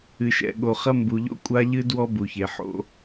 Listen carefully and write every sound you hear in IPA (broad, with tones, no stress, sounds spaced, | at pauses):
ɨ˨ ʃ ɛ̰˨ ɠ o˨ χ ɐ˦ m b u˨ ʎ o̰˦ kʷʼ a˦ ʎ ɨ˦ d w ɔ˦ b u˨ ç e˨ ħ o̰˦